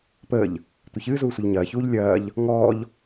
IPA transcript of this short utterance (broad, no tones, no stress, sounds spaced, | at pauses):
p əː ʎ | tʷ ɨ ç ɨː z uː sʷ ə ʎ ɲ ɐː ç uː ʎ lʲ ɐː ʎ | ŋ ɔː ʎ